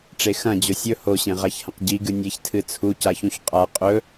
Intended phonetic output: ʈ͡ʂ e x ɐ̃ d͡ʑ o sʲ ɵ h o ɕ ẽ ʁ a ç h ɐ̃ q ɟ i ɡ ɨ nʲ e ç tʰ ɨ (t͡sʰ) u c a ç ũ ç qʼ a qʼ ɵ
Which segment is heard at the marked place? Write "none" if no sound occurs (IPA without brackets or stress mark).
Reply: t͡sʰ